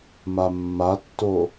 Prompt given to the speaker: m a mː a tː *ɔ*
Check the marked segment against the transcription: incorrect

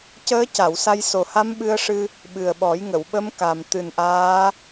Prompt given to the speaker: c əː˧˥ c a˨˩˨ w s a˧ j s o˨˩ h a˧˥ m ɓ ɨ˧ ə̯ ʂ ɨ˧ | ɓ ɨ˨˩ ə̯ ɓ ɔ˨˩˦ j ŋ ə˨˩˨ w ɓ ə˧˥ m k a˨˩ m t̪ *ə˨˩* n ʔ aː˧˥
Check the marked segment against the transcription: incorrect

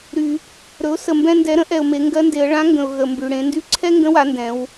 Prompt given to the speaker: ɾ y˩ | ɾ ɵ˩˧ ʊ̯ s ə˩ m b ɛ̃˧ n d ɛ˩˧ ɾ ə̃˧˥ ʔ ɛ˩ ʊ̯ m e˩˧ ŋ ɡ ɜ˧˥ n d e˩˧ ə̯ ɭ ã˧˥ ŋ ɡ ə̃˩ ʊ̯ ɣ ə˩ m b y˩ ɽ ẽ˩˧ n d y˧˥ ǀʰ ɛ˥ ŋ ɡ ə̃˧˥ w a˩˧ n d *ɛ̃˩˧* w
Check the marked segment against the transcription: correct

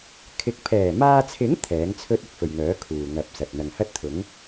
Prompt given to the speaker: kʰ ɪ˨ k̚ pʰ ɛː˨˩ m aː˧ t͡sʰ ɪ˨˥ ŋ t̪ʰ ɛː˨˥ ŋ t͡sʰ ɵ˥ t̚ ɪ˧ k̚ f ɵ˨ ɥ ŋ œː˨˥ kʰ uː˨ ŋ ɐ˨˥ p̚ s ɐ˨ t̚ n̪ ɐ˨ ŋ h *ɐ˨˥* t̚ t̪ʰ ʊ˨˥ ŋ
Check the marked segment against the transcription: incorrect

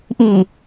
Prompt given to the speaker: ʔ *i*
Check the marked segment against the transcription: correct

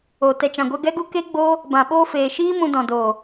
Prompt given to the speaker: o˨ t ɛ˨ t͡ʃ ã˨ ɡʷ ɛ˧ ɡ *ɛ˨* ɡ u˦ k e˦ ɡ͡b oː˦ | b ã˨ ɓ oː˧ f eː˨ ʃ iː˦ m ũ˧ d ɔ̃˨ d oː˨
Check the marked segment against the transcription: incorrect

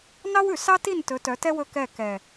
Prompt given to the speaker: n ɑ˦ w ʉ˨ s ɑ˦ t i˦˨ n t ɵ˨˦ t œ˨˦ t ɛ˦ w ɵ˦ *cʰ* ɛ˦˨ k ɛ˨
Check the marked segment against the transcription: incorrect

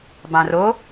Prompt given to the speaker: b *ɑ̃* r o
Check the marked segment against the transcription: correct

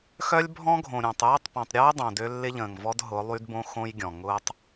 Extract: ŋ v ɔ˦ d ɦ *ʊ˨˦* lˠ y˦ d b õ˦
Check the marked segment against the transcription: correct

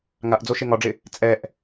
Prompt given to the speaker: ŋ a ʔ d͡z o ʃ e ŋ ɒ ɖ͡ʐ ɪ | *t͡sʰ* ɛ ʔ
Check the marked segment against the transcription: incorrect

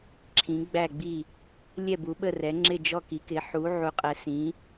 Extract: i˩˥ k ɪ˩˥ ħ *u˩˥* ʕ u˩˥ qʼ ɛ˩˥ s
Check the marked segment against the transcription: correct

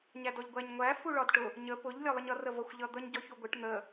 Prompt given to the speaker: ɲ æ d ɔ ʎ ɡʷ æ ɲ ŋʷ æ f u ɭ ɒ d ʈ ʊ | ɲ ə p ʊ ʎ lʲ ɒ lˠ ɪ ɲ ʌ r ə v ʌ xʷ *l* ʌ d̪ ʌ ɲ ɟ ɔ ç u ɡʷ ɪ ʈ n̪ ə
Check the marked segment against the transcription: incorrect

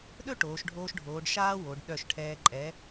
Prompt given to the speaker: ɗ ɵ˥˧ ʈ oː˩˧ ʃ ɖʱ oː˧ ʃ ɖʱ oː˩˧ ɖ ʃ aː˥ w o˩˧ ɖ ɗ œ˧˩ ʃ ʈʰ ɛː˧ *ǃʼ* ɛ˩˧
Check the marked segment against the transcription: correct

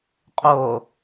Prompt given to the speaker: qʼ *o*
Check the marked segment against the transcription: correct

